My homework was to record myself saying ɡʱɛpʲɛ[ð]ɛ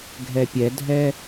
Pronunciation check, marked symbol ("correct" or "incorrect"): incorrect